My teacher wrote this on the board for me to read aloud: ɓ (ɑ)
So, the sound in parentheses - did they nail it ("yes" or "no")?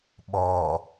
no